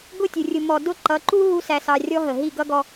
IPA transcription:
ɡʊ˦˨tʲʊ˨ rʲʊ˨mɔ˨ dʊ˦˨ ǃʌ˨˦ǃu˦ ɦu˦sæ˧sɑ˧rʲɔ˦ ɦə˨ ɦi˦˨ɡʌ˦ɡɔ˧

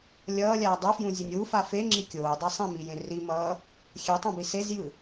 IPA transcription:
lʲʌːlʲaː dˤufjũzʲɯnʲ wufa feŋ͡ǁi kʲoːdˤe sˤĩmijẽ rimʌː | xʲɛtˤõbi sezjɯ

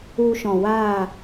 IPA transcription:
u˧ʃɔ̃˨waː˦˨

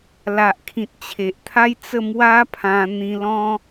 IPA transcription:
la˨ʔkʰĩ˨t̚ t͡ɕʰe˨ʔt̪ʰa˦j t͡sə˥˧ mwa˦pʰã˧ n̪ĩ˧lɔ̃˦

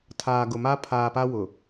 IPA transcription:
tʰaː˨ɡʊ˨ma˦ pʰaː˨pa˦ wʊ˨

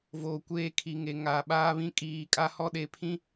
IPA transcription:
voː˨kʷeː˦˨kʰi˨ŋe˨ ŋaː˨ɓaː˦βĩ˦ kʼiː˨˦kʼa˦hɔ˦ɗe˨ pʰĩ˦

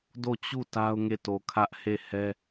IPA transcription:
do˦˨t͡ɕu˦˨ ta˦ʊ̯ŋe˦˨ to˨kʰä˦ʔ he˦˨hɛ˦

